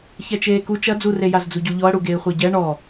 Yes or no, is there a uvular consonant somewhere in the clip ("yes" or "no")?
yes